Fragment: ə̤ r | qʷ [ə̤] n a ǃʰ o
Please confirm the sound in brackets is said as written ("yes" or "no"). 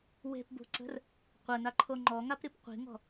no